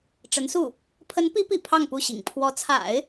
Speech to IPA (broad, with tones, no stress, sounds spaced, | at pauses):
ʈ͡ʂ ə˧˥ n s u˥˩ | pʰ ə˧˥ n p i˧˥ p ḭ˨˩ pʰ ɑ˥˧ ŋ p u˥˩ ɕ ḭ˨˩ ŋ pʰ w ɔ˧˥ t͡sʰ a̰˨˩˦ ɪ̯